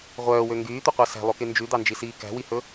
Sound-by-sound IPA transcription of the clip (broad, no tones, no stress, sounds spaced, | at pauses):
ʁʷ œː w ø ŋ ɡ yː t̪ u qʷ ɑ s æ̤ lˠ o k e n d͡ʒ ʉ d̪ ɑ n d͡ʒ i s iː k æ̤ w i h ɵ